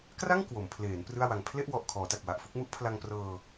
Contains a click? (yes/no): no